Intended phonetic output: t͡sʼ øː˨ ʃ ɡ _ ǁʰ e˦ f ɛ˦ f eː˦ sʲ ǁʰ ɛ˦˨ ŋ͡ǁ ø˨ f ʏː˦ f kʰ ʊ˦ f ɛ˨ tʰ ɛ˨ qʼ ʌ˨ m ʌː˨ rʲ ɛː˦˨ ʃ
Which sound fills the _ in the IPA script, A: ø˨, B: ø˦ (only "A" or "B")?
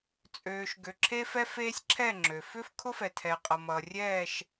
A